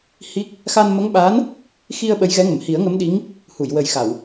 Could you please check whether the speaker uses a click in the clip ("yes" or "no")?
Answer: no